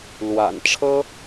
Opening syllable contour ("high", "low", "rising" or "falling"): low